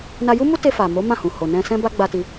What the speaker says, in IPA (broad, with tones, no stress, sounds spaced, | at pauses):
n a˧ j u˦ m u˦ t e˧ f a˨ m o˨˦ m ã˦˨ h ũ˨ h o˨ n ɛ̃˧ s ɛ̃˦ b a˦ ɡ͡b a˧ t i˧